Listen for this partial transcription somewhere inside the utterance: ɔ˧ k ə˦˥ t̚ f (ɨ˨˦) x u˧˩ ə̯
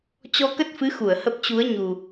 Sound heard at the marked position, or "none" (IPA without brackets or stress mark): ɨ˨˦